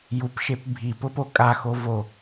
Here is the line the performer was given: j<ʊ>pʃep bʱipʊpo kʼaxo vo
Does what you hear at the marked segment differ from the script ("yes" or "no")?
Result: yes